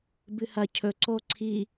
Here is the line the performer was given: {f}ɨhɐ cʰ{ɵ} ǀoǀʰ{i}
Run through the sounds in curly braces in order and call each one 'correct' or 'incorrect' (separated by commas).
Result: incorrect, correct, correct